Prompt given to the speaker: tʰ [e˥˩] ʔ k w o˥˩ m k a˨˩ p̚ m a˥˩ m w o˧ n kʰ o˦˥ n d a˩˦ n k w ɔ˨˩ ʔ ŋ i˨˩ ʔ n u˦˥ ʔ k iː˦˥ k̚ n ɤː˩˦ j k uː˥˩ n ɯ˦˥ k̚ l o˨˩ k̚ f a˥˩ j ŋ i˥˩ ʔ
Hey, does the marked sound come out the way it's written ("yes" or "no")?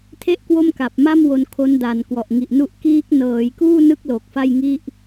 yes